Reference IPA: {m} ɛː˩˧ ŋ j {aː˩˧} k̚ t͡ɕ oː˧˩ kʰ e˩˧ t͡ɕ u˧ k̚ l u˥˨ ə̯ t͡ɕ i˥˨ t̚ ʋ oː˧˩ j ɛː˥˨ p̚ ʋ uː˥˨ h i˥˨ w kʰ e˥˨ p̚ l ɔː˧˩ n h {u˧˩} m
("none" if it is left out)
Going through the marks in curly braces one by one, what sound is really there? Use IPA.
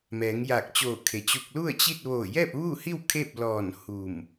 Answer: m, aː˧˩, u˧˩

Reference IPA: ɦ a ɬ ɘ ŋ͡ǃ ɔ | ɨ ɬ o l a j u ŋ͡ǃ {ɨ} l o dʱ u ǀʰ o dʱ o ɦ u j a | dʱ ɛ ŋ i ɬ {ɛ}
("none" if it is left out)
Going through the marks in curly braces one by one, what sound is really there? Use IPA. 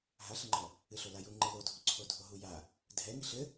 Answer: ɨ, ɘ

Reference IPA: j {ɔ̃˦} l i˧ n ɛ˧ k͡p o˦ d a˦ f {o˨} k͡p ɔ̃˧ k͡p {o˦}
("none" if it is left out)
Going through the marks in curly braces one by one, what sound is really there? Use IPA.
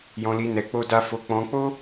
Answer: ɔ̃˧, o˧, o˦

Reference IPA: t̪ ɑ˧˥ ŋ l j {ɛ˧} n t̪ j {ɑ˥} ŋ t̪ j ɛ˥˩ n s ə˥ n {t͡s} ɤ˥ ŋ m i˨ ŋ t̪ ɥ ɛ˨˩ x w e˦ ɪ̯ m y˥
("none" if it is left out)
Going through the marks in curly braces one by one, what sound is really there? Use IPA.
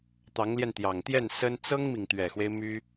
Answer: ɛ˧, ɑ˨˩, t͡s

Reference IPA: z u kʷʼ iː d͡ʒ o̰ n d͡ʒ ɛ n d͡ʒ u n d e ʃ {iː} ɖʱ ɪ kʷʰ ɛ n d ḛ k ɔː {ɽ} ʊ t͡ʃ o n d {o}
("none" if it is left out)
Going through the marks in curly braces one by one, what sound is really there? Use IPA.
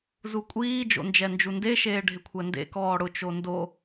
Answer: eː, ɽ, o

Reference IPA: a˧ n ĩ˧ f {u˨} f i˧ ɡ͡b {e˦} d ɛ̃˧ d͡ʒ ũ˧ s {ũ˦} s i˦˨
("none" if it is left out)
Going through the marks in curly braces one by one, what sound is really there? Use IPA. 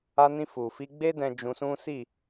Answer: u˨, e˦, ũ˦

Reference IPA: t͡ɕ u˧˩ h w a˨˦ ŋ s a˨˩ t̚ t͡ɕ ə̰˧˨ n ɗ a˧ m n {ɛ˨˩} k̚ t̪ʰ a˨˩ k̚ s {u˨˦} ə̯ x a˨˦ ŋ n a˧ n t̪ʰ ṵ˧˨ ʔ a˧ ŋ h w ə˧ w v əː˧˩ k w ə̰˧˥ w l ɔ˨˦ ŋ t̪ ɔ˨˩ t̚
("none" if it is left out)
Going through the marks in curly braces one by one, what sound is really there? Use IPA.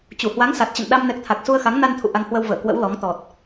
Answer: ɛ˨˩, u˧

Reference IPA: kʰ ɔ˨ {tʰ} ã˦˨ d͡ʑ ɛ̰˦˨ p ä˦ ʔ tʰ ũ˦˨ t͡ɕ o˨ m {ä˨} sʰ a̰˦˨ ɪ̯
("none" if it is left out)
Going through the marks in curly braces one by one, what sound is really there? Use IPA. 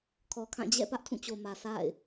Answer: kʰ, ä˨

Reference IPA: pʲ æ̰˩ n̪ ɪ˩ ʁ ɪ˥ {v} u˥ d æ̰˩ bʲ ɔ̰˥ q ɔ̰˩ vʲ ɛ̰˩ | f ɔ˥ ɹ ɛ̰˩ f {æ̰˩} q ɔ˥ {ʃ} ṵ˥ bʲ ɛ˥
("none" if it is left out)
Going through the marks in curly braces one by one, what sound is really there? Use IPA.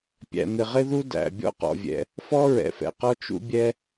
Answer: ð, ɛ̰˩, t͡ʃ

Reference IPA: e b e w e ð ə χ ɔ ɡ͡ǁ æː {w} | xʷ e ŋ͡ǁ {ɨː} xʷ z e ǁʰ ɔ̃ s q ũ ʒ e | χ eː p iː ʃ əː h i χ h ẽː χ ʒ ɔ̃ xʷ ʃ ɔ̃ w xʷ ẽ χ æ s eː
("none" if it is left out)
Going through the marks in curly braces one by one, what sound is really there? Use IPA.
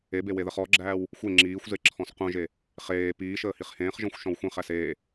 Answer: w, iː

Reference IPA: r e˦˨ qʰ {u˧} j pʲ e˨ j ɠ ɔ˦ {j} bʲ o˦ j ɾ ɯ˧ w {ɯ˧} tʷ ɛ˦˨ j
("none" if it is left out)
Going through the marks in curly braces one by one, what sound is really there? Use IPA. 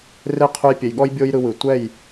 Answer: u˧, j, ɯ˨

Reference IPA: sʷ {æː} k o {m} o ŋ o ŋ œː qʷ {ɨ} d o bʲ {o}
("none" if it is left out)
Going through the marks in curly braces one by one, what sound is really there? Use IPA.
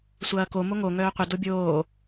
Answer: ɐː, m, ɪ, oː

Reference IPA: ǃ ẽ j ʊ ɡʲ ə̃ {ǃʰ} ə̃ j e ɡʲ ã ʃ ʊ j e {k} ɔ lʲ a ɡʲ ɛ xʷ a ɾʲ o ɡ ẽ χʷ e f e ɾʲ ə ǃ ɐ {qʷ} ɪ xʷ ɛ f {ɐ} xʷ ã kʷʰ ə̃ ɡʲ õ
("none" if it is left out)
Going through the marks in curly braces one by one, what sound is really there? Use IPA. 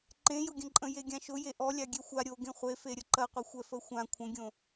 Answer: ǃʼ, ʔ, qʷ, ə

